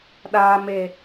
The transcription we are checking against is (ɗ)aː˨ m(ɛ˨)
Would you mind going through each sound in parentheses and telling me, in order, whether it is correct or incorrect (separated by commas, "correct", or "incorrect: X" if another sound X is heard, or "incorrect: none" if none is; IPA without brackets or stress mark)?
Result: correct, incorrect: e˨